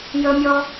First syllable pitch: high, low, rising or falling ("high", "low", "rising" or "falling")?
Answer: high